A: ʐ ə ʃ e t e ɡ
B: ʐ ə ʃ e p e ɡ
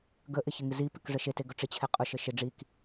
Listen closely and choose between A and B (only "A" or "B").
A